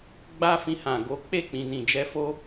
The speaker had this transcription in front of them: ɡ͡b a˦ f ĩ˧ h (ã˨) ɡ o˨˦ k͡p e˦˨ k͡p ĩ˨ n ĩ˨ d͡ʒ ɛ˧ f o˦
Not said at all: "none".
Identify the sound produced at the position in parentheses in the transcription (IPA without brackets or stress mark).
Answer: ã˨